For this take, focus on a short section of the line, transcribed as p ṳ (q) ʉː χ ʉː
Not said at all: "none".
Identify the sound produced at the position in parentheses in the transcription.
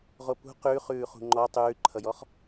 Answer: q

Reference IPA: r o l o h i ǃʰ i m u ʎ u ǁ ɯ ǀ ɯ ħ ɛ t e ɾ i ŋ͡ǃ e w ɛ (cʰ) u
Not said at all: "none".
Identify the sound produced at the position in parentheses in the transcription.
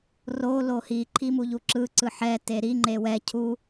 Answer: cʰ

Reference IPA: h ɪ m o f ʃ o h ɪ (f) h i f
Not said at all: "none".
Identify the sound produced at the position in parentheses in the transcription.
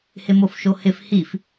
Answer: f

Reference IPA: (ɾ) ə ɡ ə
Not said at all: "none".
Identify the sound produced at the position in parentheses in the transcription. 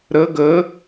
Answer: ɾ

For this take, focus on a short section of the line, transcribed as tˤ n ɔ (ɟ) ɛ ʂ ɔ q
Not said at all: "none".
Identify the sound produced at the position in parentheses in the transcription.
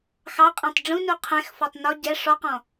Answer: ɟ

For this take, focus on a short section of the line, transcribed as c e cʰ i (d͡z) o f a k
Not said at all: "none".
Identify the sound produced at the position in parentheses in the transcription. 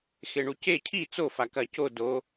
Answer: t͡s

